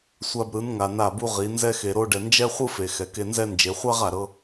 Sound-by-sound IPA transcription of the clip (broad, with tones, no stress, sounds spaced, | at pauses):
sʷ a˧ b ɾ ɯ˨˦ n ŋ a˨ n a˦˨ b u˦ ʁ i˨˦ n z ɛ˧ x e˨ ɾ o˧ ɖ ɛ˨ n d͡ʒ ɛ˦ χʷ ɯ˦ f e˨ x ɛ˨ k e˧ n z ɛ˦ n d͡ʒ e˨˦ χʷ a˦ ʁ a˨ ɾ ɤ˧